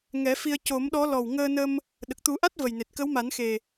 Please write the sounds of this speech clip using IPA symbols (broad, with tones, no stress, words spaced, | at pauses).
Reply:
ŋɛ˨˩˦fi˧ə̯ co˨˩˦mɗɔ˧˥ lɔ˨˩w ŋəː˧nə˧m | ɗə˨˩k̚t̪u˨˩˦ʔa˦˥t̚ və˨˩jne˨˩t̚kə˧˥wma˨˩˦n xe˨˩